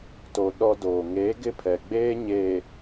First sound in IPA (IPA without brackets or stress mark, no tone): t